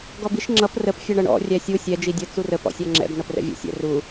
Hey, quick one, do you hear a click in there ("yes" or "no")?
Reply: yes